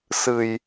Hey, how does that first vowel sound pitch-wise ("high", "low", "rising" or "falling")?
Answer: low